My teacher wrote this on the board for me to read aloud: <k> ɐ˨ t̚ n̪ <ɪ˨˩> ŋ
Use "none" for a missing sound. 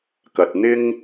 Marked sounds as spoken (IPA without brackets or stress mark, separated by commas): k, ɪ˥